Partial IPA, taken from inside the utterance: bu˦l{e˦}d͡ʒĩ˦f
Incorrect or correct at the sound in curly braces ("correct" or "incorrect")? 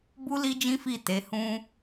incorrect